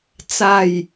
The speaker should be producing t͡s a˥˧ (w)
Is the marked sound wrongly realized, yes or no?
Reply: yes